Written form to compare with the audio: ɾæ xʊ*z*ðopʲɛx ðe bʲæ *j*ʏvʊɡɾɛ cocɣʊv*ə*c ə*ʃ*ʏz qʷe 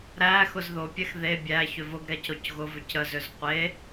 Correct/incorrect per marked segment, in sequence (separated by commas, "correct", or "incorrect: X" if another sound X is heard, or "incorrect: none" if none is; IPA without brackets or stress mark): correct, incorrect: ç, incorrect: ʏ, incorrect: z